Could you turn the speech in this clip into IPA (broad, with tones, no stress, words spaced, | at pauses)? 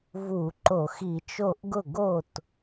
vu˧˩˧ǃo˧˩˧x i˧˩˧t͡ʃo˥˩ʔ ɡʊ˥˩ ɡo˥˩t